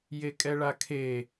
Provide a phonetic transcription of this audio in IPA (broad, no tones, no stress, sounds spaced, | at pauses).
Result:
j e kʼ ɛ ɭ a kʰ e